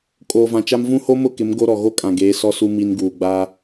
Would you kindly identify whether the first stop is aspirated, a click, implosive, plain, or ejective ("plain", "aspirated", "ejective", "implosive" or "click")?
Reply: ejective